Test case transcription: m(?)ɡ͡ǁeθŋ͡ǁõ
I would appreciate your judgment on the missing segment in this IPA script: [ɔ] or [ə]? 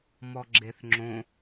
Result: ɔ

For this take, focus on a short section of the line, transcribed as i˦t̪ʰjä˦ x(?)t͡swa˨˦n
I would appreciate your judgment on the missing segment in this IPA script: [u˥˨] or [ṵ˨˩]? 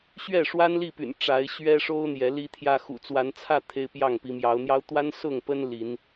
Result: ṵ˨˩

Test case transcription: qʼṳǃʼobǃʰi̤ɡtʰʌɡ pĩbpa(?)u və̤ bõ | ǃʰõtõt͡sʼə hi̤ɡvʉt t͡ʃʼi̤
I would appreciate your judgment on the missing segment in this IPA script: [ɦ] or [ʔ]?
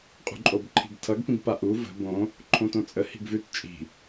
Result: ʔ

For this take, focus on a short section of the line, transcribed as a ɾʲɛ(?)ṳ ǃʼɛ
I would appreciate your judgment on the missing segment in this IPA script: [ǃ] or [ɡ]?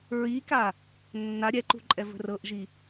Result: ǃ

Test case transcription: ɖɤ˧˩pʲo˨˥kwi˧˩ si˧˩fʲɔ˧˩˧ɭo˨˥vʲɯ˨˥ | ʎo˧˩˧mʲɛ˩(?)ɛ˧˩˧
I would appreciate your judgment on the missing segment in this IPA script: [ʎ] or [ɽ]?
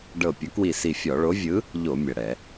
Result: ɽ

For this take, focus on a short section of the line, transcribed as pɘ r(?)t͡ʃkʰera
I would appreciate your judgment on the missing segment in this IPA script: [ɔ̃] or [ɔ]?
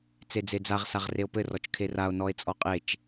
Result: ɔ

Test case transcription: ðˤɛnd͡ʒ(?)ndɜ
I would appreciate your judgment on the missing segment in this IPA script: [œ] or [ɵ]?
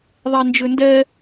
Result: ɵ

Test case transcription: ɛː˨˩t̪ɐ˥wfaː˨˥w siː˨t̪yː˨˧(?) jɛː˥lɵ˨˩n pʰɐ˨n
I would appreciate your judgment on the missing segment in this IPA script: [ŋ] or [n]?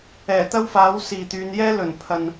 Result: n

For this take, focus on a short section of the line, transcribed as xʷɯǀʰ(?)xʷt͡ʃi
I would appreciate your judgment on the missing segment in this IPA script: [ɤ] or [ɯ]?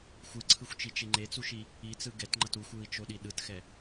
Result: ɯ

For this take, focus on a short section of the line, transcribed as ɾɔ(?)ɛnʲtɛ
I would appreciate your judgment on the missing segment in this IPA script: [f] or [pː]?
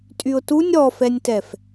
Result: f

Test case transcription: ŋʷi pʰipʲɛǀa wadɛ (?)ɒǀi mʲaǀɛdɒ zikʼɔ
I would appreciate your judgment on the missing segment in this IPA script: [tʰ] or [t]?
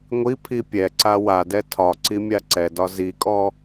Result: tʰ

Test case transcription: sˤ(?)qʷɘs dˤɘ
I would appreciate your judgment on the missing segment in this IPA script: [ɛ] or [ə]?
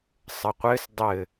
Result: ə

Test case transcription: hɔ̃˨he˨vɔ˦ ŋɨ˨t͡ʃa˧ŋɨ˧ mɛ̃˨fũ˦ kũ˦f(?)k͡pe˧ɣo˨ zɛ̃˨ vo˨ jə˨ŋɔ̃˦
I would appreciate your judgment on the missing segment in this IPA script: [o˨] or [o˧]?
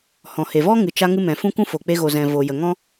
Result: o˨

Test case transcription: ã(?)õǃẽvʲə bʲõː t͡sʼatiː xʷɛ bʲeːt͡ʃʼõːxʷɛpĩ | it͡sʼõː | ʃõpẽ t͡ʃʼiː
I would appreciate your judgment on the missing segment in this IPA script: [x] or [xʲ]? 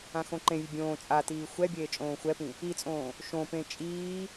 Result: x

